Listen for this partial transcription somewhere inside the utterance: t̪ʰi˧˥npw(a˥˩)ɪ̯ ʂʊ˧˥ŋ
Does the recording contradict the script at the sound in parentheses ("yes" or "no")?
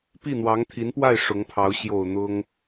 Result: no